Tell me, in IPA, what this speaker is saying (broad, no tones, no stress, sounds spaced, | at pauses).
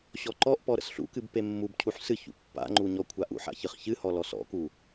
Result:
ɕ ɔ ǃ ɔ ʔ p ɔ ɾ ə̰ s ɬ ṵ k ɨ b p e mː u b cʰ u ħ s ɨ ç ṵ pː a̰ ŋ͡ǃ u ɲ ɔ kʷʰ a ʔ ṵ ħ a̰ ç ɨ χ ç ɨ h ɔ l ɔ s ɔ̰ k u